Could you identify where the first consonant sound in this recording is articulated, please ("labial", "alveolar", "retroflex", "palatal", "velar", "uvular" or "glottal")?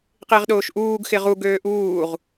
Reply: uvular